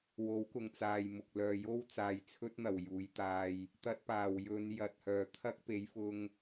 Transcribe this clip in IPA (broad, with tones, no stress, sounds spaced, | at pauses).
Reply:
w o˨˥ w k ʊ˨ ŋ t͡s aː˨ j m ʊ˨ k̚ l œː˨ j o˥ w t͡s aː˨˧ j t͡sʰ ɵ˥ t̚ n̪ ɐ˨˩ w j uː˨˥ j t̪ aː˧ j | t̪ ɐ˧ t̚ p aː˨˩ w j ɵ˨˧ n j ɐ˨ t̚ h œː˨˩ t̪ʰ ɐ˥ k̚ p e˨˥ j f ʊ˧ ŋ